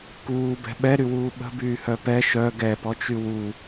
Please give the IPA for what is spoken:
k uː b ɛ̤ ɓ ɛ ɾ y w uː ɓ ə̤ b yː h œ p ɛ ʃ œ ɡ ɛ p ɔ t͡ʃ y w u

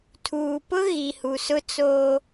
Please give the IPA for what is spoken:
tʰ uː˨ p ʊ˦ ɣ i˨ h u˨ s ʊ˦ t͡s oː˦

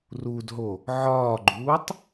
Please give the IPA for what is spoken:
r u d ɦ o | ʕ ɒː ɡ͡ǃ uː tˤ

